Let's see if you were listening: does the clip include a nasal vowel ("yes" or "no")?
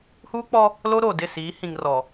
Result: yes